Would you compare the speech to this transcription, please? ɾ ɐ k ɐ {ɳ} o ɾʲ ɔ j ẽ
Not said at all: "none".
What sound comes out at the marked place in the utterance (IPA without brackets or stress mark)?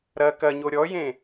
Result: ɲ